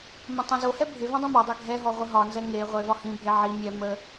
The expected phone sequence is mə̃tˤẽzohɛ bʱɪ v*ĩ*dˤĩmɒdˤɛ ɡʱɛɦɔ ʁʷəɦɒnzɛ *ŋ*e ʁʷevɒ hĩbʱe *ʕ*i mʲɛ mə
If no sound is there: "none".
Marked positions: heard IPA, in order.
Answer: ẽ, ŋ, ʕ

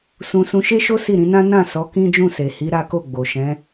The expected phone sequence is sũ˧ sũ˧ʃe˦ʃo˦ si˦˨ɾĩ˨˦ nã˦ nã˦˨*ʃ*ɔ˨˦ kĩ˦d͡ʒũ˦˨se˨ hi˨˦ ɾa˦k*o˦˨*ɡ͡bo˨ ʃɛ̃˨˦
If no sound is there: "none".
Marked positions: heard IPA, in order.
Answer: s, o˦˨

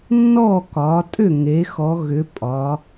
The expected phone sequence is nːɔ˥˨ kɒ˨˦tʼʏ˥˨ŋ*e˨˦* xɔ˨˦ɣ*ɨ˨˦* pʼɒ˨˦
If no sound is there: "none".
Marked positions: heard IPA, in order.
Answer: e˨˦, ʏ˨˦

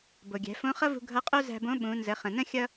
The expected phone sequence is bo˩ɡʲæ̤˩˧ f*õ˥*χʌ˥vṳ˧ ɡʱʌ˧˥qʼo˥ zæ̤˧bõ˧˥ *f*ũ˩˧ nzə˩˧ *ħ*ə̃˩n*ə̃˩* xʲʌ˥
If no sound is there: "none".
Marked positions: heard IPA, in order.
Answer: õ˧˥, ɓ, χ, ə̃˥

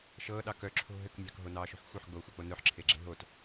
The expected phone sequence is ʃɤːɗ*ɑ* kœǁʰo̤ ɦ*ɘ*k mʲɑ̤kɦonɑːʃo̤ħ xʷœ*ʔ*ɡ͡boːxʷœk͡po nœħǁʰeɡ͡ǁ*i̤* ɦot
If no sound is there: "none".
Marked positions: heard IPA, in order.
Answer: ɑ, ɘ, ħ, e̤

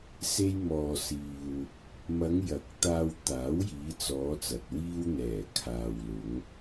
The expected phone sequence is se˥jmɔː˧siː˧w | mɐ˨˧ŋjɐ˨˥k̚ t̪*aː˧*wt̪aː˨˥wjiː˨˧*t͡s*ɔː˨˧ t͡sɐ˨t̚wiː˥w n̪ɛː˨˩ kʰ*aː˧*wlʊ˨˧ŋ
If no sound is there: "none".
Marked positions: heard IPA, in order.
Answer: aː˧, t͡s, aː˨

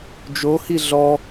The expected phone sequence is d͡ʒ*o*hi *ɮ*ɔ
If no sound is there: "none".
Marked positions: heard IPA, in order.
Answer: o, ɮ

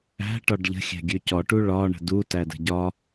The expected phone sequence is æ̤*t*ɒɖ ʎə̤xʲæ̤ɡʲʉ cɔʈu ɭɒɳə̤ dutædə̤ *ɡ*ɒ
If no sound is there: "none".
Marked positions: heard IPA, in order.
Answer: ʈ, ɟ

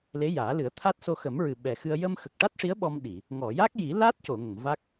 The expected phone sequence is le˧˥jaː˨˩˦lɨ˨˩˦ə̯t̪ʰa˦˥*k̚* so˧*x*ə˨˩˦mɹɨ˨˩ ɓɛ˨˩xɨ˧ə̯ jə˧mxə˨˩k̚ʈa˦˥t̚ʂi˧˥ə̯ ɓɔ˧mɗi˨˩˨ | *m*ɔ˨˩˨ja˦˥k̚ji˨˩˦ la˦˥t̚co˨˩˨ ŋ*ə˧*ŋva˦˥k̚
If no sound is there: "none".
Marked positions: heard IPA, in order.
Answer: t̚, x, ŋ, ə˨˩˨

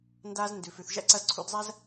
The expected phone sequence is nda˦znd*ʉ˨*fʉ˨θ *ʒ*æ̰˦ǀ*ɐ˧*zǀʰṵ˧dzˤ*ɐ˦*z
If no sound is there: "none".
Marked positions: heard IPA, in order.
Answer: ʉ˨, ʒ, ɐ˧, æ˦

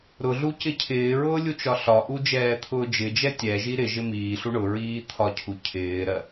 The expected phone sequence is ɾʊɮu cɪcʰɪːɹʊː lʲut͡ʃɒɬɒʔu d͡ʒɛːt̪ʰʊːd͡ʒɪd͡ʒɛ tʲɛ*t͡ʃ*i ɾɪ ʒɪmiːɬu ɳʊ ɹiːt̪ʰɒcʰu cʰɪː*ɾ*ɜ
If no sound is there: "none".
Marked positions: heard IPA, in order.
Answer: ʒ, ɾ

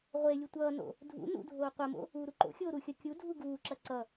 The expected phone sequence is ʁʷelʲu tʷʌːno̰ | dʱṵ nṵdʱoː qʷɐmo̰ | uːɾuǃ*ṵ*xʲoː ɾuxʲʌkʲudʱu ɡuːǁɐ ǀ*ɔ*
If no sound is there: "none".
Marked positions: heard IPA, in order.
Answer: o̰, ʌ

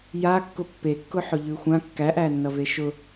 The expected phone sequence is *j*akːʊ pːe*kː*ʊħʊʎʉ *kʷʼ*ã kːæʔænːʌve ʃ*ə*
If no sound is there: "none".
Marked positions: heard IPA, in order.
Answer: j, kː, xʷ, ʊ

